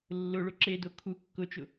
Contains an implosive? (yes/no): no